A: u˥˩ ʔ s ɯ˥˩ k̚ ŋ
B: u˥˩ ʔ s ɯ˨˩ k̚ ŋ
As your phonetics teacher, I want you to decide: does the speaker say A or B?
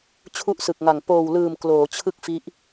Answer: B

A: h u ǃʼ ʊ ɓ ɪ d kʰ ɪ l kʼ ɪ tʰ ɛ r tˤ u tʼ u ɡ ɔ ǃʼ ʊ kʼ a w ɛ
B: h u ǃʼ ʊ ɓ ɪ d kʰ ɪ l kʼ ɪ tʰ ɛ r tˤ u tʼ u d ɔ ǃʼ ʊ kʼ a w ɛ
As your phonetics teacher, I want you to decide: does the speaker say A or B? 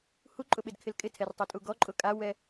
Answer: A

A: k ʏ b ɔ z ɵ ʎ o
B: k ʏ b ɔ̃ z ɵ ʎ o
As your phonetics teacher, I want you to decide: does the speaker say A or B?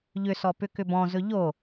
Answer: B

